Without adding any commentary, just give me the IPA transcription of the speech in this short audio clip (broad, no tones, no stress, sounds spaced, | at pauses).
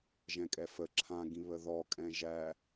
ʒ ɛ̃ kʼ ɛ f ə ǁʰ ã ɡ ĩ β ə ð ɔ kʼ ɛ̃ ʒ æ